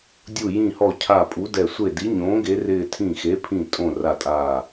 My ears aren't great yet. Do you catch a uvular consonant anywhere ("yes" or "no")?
no